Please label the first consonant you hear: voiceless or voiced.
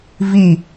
voiced